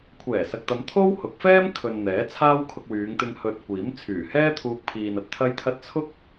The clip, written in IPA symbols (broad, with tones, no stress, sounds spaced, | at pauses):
kʷʰ ɛː˨˩ s ɐ˨ k̚ t̪ ɐ˨˧ m t̪ʰ o˥ w h ʊ˨˥ k̚ f ɛː˥ m kʰ ɵ˨ n n̪ ɛː˨˥ t͡sʰ aː˥ w kʰ ʊ˧ k̚ w yː˨˧ ŋ t̪ ɪ˧ ŋ h ɵ˨ t̚ kʷ iː˨˥ m t͡sʰ yː˨˩ h ɛː˥ t̪ʰ uː˧ k̚ pʰ iː˨ n ɐ˨ t̚ t̪ʰ ɐ˧ j t̪ʰ ɐ˧ t̚ t͡sʰ ʊ˥ k̚